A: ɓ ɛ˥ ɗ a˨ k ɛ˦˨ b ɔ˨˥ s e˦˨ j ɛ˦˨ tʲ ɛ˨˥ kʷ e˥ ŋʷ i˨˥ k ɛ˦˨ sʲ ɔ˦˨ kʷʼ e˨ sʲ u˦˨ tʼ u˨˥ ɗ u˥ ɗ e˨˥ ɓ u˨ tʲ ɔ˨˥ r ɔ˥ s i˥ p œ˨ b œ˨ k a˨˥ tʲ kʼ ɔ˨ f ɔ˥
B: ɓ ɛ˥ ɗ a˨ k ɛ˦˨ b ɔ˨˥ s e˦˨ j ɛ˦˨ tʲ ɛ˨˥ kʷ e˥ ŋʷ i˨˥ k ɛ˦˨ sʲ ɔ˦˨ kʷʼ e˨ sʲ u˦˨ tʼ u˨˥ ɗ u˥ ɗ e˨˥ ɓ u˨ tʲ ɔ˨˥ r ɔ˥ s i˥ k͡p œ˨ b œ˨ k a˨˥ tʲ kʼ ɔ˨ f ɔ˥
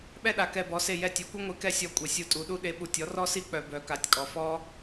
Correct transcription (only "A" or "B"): B